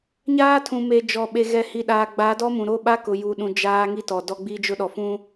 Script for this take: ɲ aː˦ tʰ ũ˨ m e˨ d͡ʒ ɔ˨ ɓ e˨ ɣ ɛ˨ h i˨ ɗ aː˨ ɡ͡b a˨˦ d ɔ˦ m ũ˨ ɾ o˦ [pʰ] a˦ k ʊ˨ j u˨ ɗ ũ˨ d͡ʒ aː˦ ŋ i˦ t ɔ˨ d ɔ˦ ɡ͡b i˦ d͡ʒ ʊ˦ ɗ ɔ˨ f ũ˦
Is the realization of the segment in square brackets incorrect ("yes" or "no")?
yes